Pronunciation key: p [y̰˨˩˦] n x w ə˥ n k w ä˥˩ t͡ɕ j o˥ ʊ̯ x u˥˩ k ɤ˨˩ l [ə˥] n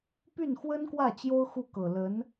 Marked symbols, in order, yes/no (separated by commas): no, no